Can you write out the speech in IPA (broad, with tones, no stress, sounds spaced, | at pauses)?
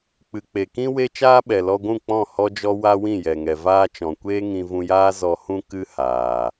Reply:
k͡p ɨ˨ k͡p e˨ k ĩ˦ w e˦ t͡ʃ aː˦ ɓ ɛ˨ l ɔ˧ ɡʷ ũ˦˨ k͡p ɔ̃˦˨ h ɔ˦ d͡ʒ ɔ˦ w a˦ w ĩ˦˨ j ɛ˨ ŋ ɛ˨ v aː˧ t͡ʃ ɔ̃˨ kʷ eː˦ ŋ ĩ˧ v ũ˧ j aː˦ z ɔ˧ h ũ˦ k ɨ˦ h aː˨